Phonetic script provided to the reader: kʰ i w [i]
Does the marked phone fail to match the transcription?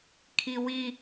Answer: no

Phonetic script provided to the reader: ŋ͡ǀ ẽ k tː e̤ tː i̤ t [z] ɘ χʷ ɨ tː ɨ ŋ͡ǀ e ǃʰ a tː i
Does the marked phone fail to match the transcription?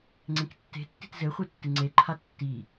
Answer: no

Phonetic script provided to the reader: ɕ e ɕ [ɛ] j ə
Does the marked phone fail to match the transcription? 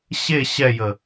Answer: no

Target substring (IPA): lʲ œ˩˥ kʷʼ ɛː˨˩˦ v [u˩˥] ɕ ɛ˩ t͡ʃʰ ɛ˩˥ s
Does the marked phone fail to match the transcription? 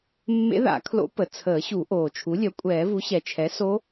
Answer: no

